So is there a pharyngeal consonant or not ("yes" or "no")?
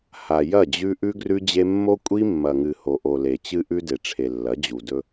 no